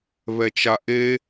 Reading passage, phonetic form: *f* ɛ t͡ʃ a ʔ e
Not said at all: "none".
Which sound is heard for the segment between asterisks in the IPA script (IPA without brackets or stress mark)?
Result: β